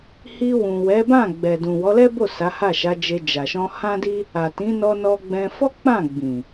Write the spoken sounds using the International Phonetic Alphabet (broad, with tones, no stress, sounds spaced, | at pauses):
h i˧ w ũ˨ w ɛ˨˦ b ã˦˨ ɡ͡b ɛ˨ d ũ˨ w ɔ˨˦ l ɛ˦ b o˦˨ s a˨˦ h a˦˨ ʃ a˨˦ d͡ʒ e˧ d͡ʒ a˨ ʃ ɔ̃˧ h ã˦ d i˦ | a˨ t ĩ˨˦ n ɔ˧ n ɔ˧ ɡ͡b ɛ̃˧ f ɔ˦ k͡p ã˦˨ ɡ͡b ĩ˨